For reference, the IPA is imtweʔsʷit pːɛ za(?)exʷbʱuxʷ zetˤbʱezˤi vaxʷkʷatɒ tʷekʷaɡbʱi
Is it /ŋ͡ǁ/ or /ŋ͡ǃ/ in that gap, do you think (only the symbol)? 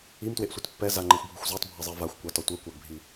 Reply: ŋ͡ǃ